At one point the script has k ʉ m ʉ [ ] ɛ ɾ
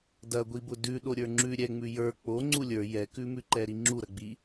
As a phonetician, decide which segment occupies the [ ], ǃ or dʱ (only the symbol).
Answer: ǃ